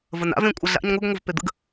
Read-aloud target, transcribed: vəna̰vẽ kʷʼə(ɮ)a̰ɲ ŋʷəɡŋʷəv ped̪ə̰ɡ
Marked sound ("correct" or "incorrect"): correct